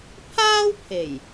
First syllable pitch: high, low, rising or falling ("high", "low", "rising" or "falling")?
high